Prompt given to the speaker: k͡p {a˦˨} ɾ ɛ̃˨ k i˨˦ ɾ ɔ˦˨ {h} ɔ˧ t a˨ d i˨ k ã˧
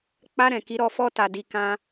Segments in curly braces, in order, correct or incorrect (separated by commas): incorrect, incorrect